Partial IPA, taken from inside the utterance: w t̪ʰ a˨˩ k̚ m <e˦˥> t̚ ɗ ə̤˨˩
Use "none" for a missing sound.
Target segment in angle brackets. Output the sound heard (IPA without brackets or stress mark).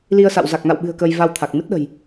ɨ˦˥